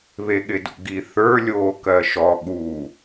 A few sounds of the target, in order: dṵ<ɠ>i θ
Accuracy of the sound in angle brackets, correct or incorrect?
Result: incorrect